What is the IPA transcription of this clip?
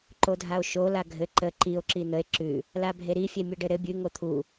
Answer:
ǃodʱao̯ʃo laɡʱɘ ǃə ǃio̯ ǁin̪əe̯ ǁʉ | labʱeɾi fʲemʲɘɖɘɾɘ bʲʉ ŋot̪ʰu

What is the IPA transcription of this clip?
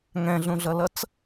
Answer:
ŋɛ̃ɮũɮʌlʌt͡s

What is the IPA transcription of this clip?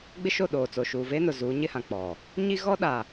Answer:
ɡ͡bɪ˦ʃo˦˨ɗoː˨t͡so˨ ʃuː˨veː˦nʊ˨zuː˨˦ ɲɪ˦hã˨k͡pɔ˨ | ɲi˦ɣɔ˦ɗa˨

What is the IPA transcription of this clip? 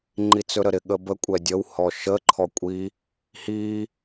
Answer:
ŋ͡ǃit͡sɵɾəɾɪ ɠəbə kʷʼɛdʲəw hɔʃə ǃʰɔkʷʼi | hi

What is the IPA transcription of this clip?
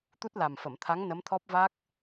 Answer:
t̪u˦˥t̚la˨˩mfə˨˩˨mt̪ʰa˧˥ŋ nə˧˥mt̪ʰɔ˦˥p̚va˦˥k̚

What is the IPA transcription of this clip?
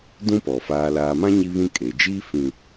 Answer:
dũ˦pɔ˨ faː˨laː˨mã˦ ɲi˦βĩ˦kʼe˨d͡ʒiː˦ fĩ˨

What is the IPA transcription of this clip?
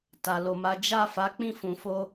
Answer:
ta˨lo˨ma˨˦ d͡ʒa˦˨fa˨˦ k͡pĩ˦˨fũ˨fo˧

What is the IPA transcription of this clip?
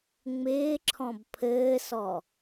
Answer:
ŋ͡mɪːǁʰɔ̃b pʰɘːsɔ

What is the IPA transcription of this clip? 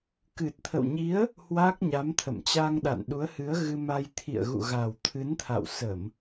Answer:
kɨ˨˩t̚t̪ʰə̰˧˨wɲi˨˦ə̯ | hwa˦˥k̚ɲa˨˦mt̪ʰə̰˧˨m t͡ɕa˧ŋɗa̰˧˨nɗu˨˦ə̯hɨ˨˦ə̯ ɣɨ˧ma˧j t̪ʰḭ˧˨ə̯ɣṵ˧˨ɣa˨˩w t̪ʰɨ˨˦nt̪ʰa̰˧˨w sə˧˩˨m

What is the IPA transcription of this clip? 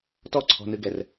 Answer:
tɔǀʰɔ̤nɨɡɛr

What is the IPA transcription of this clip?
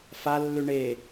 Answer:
falːʉ ɳe

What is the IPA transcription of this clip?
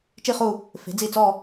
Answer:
t͡ʃi˥˧χu˥˧ | fe̤˩˥d͡zi˥˩t͡sɔ˥˧

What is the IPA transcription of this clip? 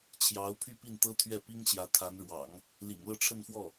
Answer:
t͡ɕʰjɑ˧˥ʊ̯pʰy˥˧pi˥˩n t̪ɤ˥t̪ʰɥɛ˥˩pi˥ŋ ɕjä˧˥t̪ʰa˧˥nɻwɑ̰˨˩˦ŋ | lḭ˨˩ŋlɤ˥˧ʈ͡ʂʰə˥˧nfwɔ˥˩

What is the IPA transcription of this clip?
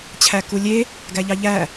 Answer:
t͡ɕʰækulʲe | ɡæʎɑʎæ

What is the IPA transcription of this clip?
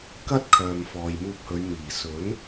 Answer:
kɐ˥t̚kʰœː˨m fɔː˨jmuː˧p̚hɵ˨˧ɥ miː˨˩ sɵ˨˥n

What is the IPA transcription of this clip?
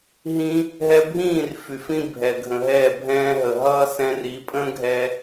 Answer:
ɦĩː˧ | ɦɛ˧bʱĩː˦˨r fy˨fĩ˦ bʱɛ˨ɡʱə̃˨ɦɛː˦˨bʱɛ̃ː˦ ɦə˨ɦʌː˦ sɛ̃˧ri˨˦pʼə̃ː˦ ɡʱɛː˦

